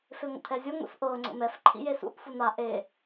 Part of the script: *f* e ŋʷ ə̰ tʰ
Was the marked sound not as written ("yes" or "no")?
no